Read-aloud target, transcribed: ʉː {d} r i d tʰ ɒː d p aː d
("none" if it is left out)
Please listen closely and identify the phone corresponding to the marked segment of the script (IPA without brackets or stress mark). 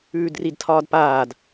d